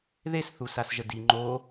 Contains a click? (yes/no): yes